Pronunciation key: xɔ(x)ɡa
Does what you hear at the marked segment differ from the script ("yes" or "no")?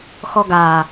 yes